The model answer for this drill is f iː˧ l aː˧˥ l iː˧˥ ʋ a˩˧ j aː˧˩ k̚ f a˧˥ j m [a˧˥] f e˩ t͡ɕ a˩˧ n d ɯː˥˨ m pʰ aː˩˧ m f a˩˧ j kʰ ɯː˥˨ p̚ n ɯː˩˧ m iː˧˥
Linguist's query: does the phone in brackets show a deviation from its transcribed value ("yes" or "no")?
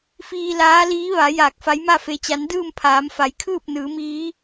yes